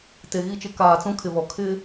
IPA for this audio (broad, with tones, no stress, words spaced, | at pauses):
te˨ɣi˦˨t͡ʃɪ˦ kaː˨t͡sũ˦kʰɪ˨βɔ˨ kʰɪ˦